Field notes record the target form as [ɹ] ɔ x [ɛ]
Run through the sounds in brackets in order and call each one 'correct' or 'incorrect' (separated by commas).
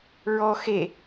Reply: correct, incorrect